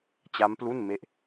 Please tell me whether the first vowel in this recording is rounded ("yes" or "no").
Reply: no